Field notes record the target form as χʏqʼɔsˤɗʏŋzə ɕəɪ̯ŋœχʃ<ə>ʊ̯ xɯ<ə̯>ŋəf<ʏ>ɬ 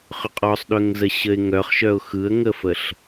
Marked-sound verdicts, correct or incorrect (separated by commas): incorrect, correct, incorrect